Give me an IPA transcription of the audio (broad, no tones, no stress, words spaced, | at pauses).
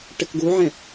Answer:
ʈɘkɡuʕɛ̃